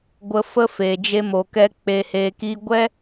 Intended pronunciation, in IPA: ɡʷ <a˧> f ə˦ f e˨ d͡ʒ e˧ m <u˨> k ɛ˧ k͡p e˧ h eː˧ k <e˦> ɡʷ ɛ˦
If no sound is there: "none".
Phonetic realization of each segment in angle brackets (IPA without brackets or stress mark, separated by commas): ə˧, o˨, i˦